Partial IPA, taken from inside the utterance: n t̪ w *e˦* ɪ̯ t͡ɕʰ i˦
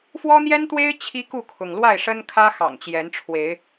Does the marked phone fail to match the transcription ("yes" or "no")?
no